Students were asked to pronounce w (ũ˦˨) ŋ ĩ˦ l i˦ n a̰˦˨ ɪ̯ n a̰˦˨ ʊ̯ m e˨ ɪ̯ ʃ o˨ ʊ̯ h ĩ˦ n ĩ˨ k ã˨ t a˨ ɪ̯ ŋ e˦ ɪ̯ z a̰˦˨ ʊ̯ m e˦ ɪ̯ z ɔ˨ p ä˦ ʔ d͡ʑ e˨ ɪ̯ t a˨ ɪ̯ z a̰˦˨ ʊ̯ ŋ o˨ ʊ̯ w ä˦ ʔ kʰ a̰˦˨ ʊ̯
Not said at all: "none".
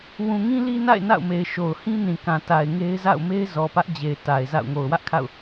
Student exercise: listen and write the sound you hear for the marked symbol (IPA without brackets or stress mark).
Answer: ũ˨